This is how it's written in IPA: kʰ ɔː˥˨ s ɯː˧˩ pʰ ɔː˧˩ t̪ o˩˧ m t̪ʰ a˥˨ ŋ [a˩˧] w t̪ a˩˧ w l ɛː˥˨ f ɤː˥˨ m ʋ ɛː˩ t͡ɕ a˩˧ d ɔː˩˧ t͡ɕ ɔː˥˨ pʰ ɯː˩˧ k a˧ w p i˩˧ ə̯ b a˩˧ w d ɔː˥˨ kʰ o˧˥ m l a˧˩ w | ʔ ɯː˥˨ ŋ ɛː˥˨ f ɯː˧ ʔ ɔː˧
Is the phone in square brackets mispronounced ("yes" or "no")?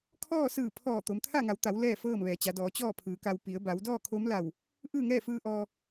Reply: no